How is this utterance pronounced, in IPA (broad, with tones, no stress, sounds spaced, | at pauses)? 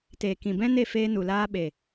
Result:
t eː˨ k ĩ˨ b ɛ̃˦ n e˦˨ f eː˧ n u˨ l aː˧ ɓ e˨